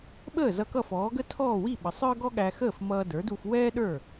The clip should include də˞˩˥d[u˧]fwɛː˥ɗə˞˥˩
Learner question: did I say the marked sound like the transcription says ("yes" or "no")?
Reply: yes